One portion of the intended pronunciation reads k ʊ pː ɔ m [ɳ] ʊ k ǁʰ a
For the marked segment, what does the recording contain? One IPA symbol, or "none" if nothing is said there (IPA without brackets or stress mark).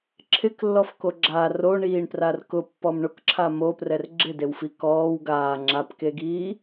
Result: ɳ